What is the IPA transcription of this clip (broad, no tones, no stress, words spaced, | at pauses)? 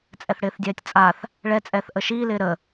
t͡sʼɛθɽɪːθdʲɛːtʲt͡sʼaθ | ɭɛt͡sʼɛːθ ʔəʃiːlɪː ɾə